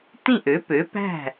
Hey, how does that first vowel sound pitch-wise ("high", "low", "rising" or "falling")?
falling